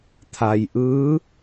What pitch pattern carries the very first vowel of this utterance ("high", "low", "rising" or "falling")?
low